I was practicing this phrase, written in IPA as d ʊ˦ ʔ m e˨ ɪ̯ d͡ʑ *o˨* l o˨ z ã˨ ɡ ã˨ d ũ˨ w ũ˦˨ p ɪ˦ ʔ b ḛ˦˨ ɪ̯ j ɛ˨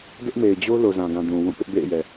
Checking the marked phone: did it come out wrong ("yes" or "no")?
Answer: yes